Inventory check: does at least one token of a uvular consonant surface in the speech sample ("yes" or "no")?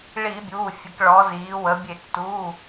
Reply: no